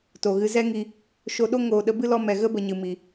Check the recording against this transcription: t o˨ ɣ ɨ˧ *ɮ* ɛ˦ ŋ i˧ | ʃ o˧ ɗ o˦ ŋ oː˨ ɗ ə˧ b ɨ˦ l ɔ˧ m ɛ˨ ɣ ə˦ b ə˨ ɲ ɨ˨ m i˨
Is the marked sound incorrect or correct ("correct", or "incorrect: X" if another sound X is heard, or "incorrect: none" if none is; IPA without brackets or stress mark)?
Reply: incorrect: z